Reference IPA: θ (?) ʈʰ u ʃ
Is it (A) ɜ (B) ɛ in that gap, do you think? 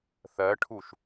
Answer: A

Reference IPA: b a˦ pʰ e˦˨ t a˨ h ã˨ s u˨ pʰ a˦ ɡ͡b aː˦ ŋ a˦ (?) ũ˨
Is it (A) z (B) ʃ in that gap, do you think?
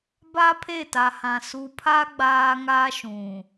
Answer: B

